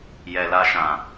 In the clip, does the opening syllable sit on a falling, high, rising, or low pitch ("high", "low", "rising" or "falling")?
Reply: low